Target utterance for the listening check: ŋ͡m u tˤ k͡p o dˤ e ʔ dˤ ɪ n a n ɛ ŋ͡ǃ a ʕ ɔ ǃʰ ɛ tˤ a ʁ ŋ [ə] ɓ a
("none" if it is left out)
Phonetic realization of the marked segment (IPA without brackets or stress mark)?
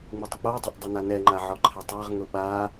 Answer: ʊ